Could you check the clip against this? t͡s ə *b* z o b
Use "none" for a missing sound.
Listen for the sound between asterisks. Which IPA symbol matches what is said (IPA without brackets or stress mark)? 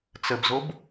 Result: b